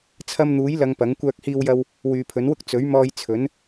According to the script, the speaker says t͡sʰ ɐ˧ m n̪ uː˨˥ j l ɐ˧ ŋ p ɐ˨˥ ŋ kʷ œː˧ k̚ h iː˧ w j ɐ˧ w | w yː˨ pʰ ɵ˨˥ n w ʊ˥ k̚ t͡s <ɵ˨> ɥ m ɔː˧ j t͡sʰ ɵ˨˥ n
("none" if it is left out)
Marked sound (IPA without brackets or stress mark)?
ɵ˨˥